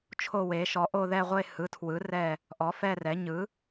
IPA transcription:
t͡ʃʰ o˦˨ w e˩˥ ʃ ɔ˩˥ ʔ o˦˨ ð ɛ˦˨ ʁʷ e˦˨ h ɯ˩˥ tʰ w ɯ˩˥ r ɛ˦˨ | ʔ ɔ˩˥ f ɛ˦˨ r ɛ˩˥ ɲ ɯ˩˥

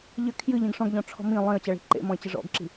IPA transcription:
ʎ ɘ kʰ j ɨ ʎ ĩ ɡ ʂ ɔ̃ ɡ ʎ ɔ̃ ʈ͡ʂʰ ɔ̤ m ĩ lˠ ẽ ə̯ t͡ɕ a ɭ i̤ ǃ ḛ m ɔ̃ ɪ̯ t͡ɕ ɘ ʐ ɔ̰ ɡ ǁ i̤

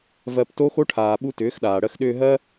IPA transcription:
v ɜ˧ p t o˦ x o˦ ʈʰ aː˨ ɓ u˧ t ʏː˨˦ x ɗ aː˨ ɽ ɜ˦ x ɗ ʏː˧ ɦ ɜ˦

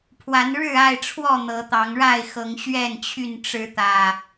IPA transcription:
pʰ w a˨˦ n ɻ ɻ̩˥˨ a˥˨ ɪ̯ ʈ͡ʂʰ w ɔ˥˨ n̪ ɤ˨˦ t̪ ɑ˨˦ ŋ ɻ a˥˨ ɪ̯ x ɤ˨˦ ŋ ɕ ɥ ɛ˥˨ n t͡ɕʰ y˥˨ n ʈ͡ʂ ɻ̩˨˦ t̪ ä˨˩

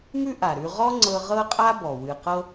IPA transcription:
m ʉ˥ ʔ a˩ ɾ ʉ˧ ʁ ɔ˥ ŋ͡ǀ ɤ˧ ʁ ɤ˥ qʼ a˥ b ɔ˩ w ɨ˩ q ɤ˧

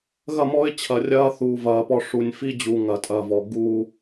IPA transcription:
ɣ ɐ˦˨ m ɔ˦ ɪ̯ t͡ɕʰ ɐ˨ rʲ ɐː˦ θ uː˨ v ɐː˨ p ɔ˦ ʂ u˨ nʲ f i˦ d͡ʑ u˨ ŋ ɐ˨ tʼ ɐ˦˨ v ɔ˨ ɡ uː˦

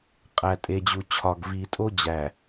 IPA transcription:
qʼ æ˨ tʼ e˨ d͡ʑ u˨ t͡ɕʰ ɒ˨ ɡ v i˨ tʼ o˦ d͡ʑ æ˨

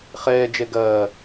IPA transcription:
χ ɛː d͡ʒ ɛ ɡ ɐː

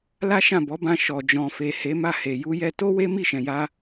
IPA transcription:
l a˦ ʃ ã˦˨ b ɔ˨˦ b ã˧ ʃ ɔ˨ d͡ʒ ɔ̃˨ f e˨ h e˨˦ m a˦˨ h e˨ j u˧ j ɛ˧ t o˦ w e˦ m i˦˨ ʃ ɛ̃˨ j a˧

